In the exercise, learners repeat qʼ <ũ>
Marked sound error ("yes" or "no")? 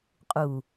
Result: yes